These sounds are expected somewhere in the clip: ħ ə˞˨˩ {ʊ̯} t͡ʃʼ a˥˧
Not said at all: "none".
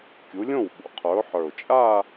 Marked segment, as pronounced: ʊ̯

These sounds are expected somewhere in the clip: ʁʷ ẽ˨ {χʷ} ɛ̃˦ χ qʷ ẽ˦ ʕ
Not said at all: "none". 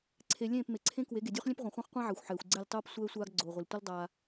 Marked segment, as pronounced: χʷ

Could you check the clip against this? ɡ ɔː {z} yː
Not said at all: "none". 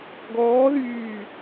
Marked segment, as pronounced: ð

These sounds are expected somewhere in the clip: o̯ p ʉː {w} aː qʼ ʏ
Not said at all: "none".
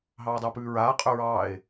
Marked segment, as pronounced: ɹ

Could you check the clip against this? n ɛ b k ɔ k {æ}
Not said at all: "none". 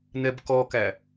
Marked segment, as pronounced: æ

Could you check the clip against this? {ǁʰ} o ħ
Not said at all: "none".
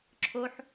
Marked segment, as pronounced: ǁʰ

